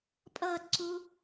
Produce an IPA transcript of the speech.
pʼ ʌː t ǀ u

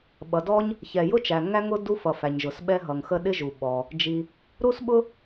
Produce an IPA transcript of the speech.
ɓ ʌ˩ d ɔ˥ ɲ | ç ɛ˩ j ʊ˥ t͡ʃ æ˩ ŋ æ˥ ŋ ʊ˥ d u˥ f ʌ˩ f æ˩ ɲ ʒ ʊ˩ s ɓ ɛ˥ ɦ ʌ˩ ŋ x ə˥ ɗ ɪ˥ ʒ u˩ ɓ ɔ˩ | d͡ʒ i˩ | ɾ u˥ s ɓ ʊ˥

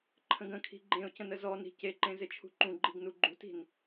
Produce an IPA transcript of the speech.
ǃʰ ə̃ ɡ ə̃ kʰ i̤ ɡ͡ǃ ẽ ʊ̯ c ə̃ n ə z ɔ n i̤ c e ǃ ẽ z ɪ t͡ʃʰ ṳ ǃ ũ ɡ͡ǃ i ɡ n u ɡ͡ǃ ṳ t i̤ n

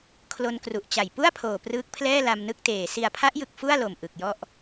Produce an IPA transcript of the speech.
kʰ l o˧ n k r u˨˩ ʔ t͡ɕ a˨˩ j p u˥˩ a̯ pʰ oː˨˩ p r ɯː˦˥ k̚ pʰ l ɛː˥˩ l a˧ m n ɯ˥˩ k̚ t eː˨˩ s i˨˩ a̯ pʰ a˦˥ ʔ j ɯ˨˩ k̚ f u˥˩ a̯ l o˨˩ m ʔ ɯ˨˩ k̚ j ɔ˥˩ ʔ

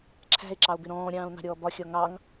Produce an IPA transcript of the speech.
ǁʰ æ̤ e̯ ǁ ɑ o̯ b ɪ ɾ ɔ̃ː ɾʲ ɑ̃ː o̯ n ɑ̤ ɾʲ ɔː b ɒ xʲ ɒ ŋ ɑ ŋ

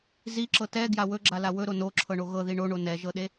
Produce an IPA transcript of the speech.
z i ǁ ɤ t ɛ ɡ j a w ɵ ɡ͡ǁ a l a w ɵ ɾ o n o ǁʰ ɤ ɳ o ɣ ɤ ð i ɳ o ɳ o n ɛ ʒ ɤ ɗ e

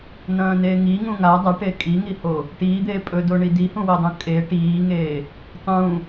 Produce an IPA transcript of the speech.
n ɐ̃ː n eː ŋ i ŋ ũ ŋ a dˤ a ʈ e kʼ i ŋ i h o | ʈ iː d̪ eː pʼ ɵ d o ɳ i d i h ũ w e dˤ ũ kʼ e ʈ iː ŋ eː | tˤ ũ

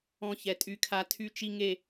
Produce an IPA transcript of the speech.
ɔ̃˦ ç ɛ˦ tʼ y˦ kʰ a˦ tʰ y˦ t͡ʃ i˦ ŋ e˦

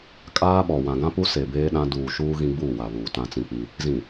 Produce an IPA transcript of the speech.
kʼ aː˦ ɓ ɔ˨ w ã˨ ɡ ã˦ p u˦ s e˨ b eː˦ ɗ ã˦ d uː˨ ʃ uː˦ ɣ ĩ˦ ɡ͡b uː˦˨ w a˨ β uː˨ t ã˦ t͡s ĩ˦ k͡p i˦ | z ĩ˨

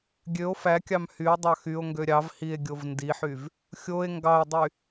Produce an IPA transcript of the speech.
ɡʲ ø o̯ f æ kʲ ɑ m h y o̯ dˤ ɑ x y o̯ ŋ ɡ ø ɾʲ ɑ v h i e̯ ɡʲ o v n d i ħ y v | xʲ o e̯ ŋ ɡ ɑ e̯ dˤ y

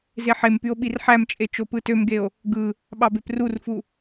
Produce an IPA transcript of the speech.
z e ħ e m p y o̯ ɓ i r ħ æ m t͡ʃʼ e t͡ʃ o p ɯ t ø m ɡ e o̯ | ɡ ɯ | ɓ ɑ b e p r u r f u

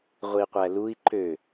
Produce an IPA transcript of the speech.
ʁʷ i qʷ æ l u i̯ ǃ ø

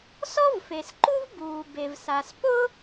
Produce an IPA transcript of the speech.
s ɔ˥ v f e˩ s ǃ u˥ v b uː˩ b e˩ v s a˩ s p ʊ˥

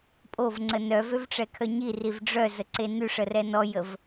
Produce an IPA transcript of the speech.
pʼ o v ŋ͡ǀ ə n œ v ø v ʈ͡ʂ ɛ kʰ œ ɲ i r i v ɖ͡ʐ œ z ə ǀ e n y ʂ ə r ɛ n ɔ j ə v

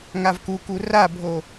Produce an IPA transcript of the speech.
ŋ a v k u k u r a bʱ o

